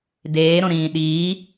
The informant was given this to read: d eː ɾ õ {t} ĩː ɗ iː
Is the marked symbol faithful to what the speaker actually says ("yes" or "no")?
no